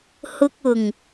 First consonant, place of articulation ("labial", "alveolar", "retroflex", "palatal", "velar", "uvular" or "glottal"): glottal